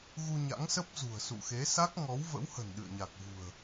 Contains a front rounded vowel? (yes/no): no